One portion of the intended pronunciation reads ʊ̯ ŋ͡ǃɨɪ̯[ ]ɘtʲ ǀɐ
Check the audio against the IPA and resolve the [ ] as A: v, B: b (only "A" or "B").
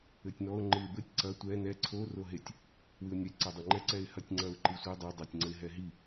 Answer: B